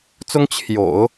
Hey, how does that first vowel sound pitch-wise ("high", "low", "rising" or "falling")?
high